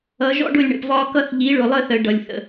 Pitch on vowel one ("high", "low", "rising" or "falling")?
rising